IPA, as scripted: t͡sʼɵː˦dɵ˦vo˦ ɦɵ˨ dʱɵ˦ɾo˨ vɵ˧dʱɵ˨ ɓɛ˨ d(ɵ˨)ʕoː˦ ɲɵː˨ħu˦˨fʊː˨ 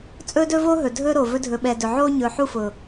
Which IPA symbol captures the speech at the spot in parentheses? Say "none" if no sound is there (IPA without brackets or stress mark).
ɵ˨